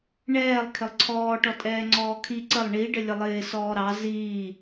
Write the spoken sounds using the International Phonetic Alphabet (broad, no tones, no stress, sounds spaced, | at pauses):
ɳ ɛː lˠ kʰ ɪ lˠ ǀʰ ɔː ʈ ɔ tʼ ɛː ŋ͡ǀ ɔː kʰ i ǀ ə lˠ ɳ i ɖ ə lʲ ə lˠ ɪː s ɔː ɾ ɑ z iː